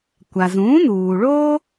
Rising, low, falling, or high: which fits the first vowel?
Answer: low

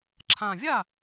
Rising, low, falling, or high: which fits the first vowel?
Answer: low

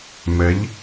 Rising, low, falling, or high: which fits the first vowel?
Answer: rising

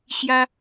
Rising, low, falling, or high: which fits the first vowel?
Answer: high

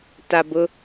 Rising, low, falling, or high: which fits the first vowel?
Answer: low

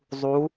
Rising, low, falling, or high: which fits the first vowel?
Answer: rising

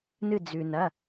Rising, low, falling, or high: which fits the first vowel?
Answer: falling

